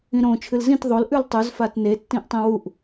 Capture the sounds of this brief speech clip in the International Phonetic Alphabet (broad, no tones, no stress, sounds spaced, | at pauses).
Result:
ĩ ɾ õ t͡ʃʰ ɨ l z ĩ t ðˤ o l ʔ ʉ l tˤ ʉ z f a t n e tː ĩ ʔ tˤ ĩ w u ʔ